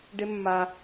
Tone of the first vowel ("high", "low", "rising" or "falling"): high